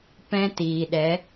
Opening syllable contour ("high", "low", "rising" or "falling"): high